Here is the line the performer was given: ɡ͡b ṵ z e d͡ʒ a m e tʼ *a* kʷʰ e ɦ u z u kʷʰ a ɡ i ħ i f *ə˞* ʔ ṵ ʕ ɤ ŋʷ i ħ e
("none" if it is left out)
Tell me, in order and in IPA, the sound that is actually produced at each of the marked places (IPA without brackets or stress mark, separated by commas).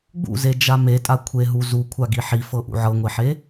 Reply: a, ɤ